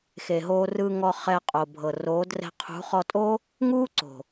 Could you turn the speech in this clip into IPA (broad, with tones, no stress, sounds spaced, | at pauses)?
x e˨ ɦ oː˧ r ɯː˧ ŋ ɔ˧ χ ɛː˧ qʼ oː˨ bʱ ɤ˨ r oː˨˦ d r ɛ̤˧ qʰ ṳ˨˦ χ ɔ˧ tʼ o˦ | ŋ uː˦ ǀ o̤˨